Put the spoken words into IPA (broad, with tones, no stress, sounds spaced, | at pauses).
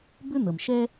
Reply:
b ʏ˥ n̪ ə˩ m ʃ ɛ˥